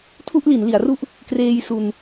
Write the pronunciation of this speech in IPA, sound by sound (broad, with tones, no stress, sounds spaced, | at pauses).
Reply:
tʰ u˥˩ ʔ l i˩˦ n l i˩˦ a̯ r u˥˩ ʔ | k r eː˧ j s u˧ n